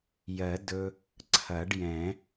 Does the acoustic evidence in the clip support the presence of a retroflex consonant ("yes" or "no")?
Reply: yes